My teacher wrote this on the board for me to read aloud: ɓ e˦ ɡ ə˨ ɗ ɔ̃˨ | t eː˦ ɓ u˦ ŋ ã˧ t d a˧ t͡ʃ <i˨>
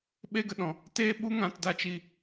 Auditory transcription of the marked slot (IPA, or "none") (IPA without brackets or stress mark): i˨